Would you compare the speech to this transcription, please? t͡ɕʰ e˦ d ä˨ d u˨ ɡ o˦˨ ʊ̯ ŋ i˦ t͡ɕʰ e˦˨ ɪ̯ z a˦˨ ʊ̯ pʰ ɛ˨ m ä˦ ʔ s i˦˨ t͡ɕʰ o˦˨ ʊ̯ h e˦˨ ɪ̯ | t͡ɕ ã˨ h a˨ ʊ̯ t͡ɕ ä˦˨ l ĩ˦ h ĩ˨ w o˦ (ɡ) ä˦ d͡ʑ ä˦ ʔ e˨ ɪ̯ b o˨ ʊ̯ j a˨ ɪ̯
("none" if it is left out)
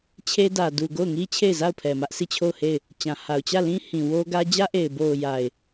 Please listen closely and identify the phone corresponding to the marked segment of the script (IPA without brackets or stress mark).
ɡ